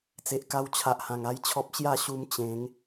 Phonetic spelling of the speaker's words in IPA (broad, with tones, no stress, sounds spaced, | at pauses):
t͡s e˨ ʔ k a˧ w t͡ɕʰ a˨ ʔ h ã˨˩ ŋ a˦ j t͡ɕʰ ɔ˦ p̚ ɕ j a˥˧ ɕ u˧ m t͡ɕ ẽ˨˦ ŋ